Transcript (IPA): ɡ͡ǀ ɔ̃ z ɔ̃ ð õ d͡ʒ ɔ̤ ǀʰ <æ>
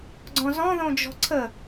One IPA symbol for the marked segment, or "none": ə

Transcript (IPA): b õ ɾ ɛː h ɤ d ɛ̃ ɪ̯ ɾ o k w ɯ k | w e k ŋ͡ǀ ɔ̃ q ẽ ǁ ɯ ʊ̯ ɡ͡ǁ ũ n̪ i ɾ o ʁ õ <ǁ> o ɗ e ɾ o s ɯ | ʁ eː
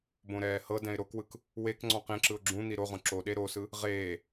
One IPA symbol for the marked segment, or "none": ǁ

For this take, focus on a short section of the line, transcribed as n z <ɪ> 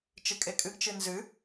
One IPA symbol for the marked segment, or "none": ɨ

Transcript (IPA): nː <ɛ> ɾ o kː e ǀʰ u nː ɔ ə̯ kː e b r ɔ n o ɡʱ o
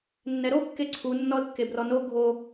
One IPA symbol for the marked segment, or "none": ɛ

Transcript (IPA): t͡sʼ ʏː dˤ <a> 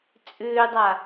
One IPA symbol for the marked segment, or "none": a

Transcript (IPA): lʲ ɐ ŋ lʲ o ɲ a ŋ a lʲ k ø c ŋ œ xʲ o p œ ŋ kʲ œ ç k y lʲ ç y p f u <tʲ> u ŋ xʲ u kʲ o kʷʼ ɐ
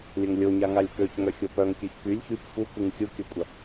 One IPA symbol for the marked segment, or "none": k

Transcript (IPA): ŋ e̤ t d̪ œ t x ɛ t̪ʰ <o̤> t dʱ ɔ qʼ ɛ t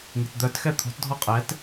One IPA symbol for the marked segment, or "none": o̤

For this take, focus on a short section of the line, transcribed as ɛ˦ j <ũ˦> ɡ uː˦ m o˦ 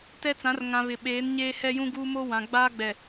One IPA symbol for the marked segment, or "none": ũ˦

